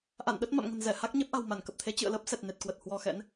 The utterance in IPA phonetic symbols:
ʔ a̰˧˨ n ɗ ə˦˥ t̚ m a̰˧˨ m ŋ ə̤˨˩ n z ɛ˧˩ h a˦˥ k̚ ɲ e˦˥ p̚ ʔ a̤˨˩ w m a˧˩ n k ə˨˩ p̚ t̪ʰ e˨˦ t͡ɕ ɨ̰˧˨ ə̯ l əː˦˥ p̚ s ɛ˨˩ t̚ n e˨˩ t̚ k w ə˨˩ t̚ h w ɔ˧ x ɛ̰˧˥ n

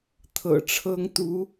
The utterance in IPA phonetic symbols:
t̪ʰ ɤ̰˨˩ ʈ͡ʂʰ ɤ˥ ŋ t̪ u˧˥

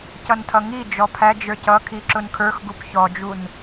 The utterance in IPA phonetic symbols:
c ʌ n tʰ ʌ ŋ i d͡ʒ ɔ pʰ æ d͡ʒ ə˞ c ʌ kʰ i ǁ ʊ n kʰ ə˞ x ɡ u p ç ɔ d͡ʒ u n

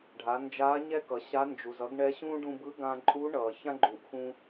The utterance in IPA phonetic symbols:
ɖʱ a˩˧ n d͡ʒ aː˧˥ ɲ ɛ˥ k ʌ˩ ɕ a˧˥ n d͡ʒ u˩ z ʌ˧˥ ɡ ɳ ɛ˧˥ ɕ ũː˥ ɖ ũ˧ b ɯ˧˥ ɡ ãː˧ ǃʼ u˧˥ ɳ ʌː˩ ç ã˥ ɡ͡ǃ uː˩ ʔ x ũ˧

